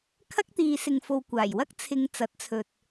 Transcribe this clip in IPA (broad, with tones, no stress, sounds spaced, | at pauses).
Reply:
kʰ ɐ˥ k̚ t̪ iː˨˧ s ɪ˨ ŋ f o˨ w kʷ aː˨˩ j w ɐ˥ k̚ t͡sʰ ɪ˨˧ ŋ t͡s ɐ˨˥ t̚ t͡sʰ ɵ˨ t̚